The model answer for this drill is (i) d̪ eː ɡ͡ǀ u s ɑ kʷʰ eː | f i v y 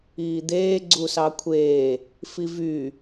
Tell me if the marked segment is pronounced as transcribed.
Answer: no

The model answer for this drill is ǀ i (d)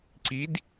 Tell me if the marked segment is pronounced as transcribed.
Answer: yes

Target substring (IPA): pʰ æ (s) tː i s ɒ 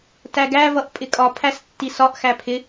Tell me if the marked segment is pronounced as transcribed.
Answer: yes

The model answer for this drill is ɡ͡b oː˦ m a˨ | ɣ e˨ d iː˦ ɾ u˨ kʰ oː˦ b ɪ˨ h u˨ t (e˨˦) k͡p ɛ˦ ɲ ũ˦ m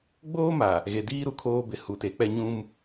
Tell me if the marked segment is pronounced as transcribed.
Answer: yes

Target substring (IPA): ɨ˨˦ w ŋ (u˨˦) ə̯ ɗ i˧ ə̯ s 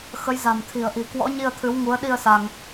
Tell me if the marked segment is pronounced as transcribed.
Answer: yes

